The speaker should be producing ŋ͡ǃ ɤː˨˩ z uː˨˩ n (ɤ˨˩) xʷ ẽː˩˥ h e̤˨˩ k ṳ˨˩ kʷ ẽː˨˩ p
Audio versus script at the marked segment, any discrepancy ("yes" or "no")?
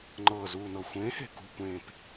no